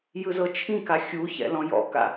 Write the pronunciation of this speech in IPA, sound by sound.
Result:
j ɯ z ɤ t͡ʃʰ ĩ k a xʲ u ç ɛ̰ l ɔ̃ j ɔ̰ k a̰

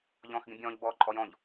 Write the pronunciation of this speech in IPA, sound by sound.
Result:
ʎ ɔ̃ː x ɡ ĩ bʲ ɔ̃ː ʎ b ɔː ǃʼ ɔ j ɔ̃ ʎ

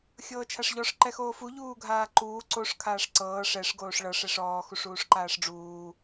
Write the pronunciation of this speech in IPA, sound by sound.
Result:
xʲ ɤː t͡ʃʰ a ʂ ʎ ɔ ʂ ǃ ɛ x oː f u ʎ uː ɡʱ aː ǃ uː ǀ o ʂ kʰ aː ʂ ǀ ɤː ʂ ɛ ʂ ɡ oː ʂ ɭ ɤ ʂ ɛ ʂ ɔː x u ʂ uː ʂ ǃ aː ʂ ɖ͡ʐ uː

